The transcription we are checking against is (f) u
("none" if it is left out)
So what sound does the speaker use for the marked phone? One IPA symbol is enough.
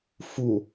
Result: f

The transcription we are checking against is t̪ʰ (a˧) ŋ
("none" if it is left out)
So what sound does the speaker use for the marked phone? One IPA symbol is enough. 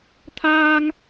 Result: aː˧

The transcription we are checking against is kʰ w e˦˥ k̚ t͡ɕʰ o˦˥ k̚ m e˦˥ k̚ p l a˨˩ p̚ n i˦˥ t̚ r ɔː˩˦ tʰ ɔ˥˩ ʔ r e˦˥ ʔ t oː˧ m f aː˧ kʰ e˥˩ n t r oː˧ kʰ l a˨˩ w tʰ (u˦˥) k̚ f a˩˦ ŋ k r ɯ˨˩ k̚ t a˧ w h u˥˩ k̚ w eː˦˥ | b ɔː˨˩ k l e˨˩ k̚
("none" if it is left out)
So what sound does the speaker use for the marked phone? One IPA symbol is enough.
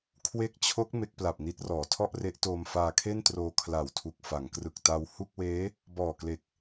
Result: u˨˩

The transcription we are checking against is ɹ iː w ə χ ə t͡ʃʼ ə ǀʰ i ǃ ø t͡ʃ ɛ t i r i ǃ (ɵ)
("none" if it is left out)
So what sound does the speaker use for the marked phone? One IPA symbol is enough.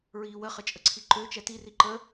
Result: ə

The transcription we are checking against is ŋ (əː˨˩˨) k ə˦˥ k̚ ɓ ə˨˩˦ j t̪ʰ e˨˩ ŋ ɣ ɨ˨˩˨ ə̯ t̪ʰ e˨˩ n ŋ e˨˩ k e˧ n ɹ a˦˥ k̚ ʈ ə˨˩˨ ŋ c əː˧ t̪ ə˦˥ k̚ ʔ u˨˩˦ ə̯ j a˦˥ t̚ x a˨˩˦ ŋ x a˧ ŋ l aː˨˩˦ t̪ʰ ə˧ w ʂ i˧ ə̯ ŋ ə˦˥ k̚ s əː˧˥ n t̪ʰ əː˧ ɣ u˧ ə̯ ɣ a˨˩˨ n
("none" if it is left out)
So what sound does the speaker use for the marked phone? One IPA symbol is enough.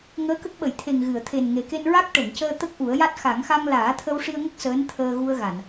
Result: əː˧˥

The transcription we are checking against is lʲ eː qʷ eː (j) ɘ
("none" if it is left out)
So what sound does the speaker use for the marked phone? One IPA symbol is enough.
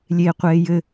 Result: j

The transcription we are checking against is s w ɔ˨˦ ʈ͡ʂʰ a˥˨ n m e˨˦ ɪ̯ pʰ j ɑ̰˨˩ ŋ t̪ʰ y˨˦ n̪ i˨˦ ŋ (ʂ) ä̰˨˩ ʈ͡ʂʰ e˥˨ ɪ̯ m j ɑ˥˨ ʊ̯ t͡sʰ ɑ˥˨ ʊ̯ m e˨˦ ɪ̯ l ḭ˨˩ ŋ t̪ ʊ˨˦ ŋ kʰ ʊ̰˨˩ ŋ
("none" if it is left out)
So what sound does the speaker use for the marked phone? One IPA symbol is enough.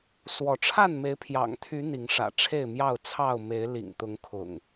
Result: ʂ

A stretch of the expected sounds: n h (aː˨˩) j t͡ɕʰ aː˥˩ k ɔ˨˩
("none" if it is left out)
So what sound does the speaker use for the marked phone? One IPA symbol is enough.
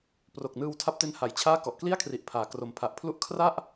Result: a˨˩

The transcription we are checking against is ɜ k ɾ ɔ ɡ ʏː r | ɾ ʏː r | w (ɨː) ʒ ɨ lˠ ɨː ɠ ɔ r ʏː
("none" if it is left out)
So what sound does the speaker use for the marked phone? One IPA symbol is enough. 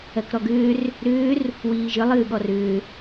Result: iː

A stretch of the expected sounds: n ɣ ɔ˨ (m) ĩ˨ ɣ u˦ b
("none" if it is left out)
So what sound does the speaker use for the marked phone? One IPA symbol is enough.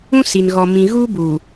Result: m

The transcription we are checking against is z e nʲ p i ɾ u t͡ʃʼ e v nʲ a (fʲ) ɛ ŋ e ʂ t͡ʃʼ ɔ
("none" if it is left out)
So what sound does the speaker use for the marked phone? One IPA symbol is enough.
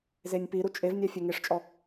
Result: fʲ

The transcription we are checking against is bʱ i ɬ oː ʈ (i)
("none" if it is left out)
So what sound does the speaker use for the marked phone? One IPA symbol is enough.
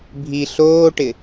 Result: ɪ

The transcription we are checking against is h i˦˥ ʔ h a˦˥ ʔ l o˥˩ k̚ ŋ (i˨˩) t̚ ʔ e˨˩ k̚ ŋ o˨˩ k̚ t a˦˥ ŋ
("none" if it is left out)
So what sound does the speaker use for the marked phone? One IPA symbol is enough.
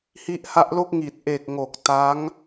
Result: i˨˩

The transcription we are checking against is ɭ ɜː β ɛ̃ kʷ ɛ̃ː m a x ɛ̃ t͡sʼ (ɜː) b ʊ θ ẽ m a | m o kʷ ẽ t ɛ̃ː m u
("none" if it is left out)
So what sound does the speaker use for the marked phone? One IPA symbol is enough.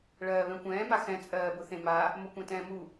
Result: ɜː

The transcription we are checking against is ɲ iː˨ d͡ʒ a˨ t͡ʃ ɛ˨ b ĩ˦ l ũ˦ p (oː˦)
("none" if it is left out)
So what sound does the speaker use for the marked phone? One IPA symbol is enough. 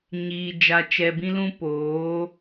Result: oː˨˦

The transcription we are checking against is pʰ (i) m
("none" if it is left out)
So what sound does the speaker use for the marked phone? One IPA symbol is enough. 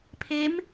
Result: e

